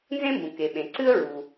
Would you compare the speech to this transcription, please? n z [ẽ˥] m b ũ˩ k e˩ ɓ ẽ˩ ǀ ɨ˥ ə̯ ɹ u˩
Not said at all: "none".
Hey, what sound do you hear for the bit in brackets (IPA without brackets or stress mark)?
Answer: ẽ˥